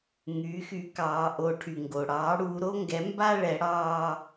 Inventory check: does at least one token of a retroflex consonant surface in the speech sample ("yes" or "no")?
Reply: yes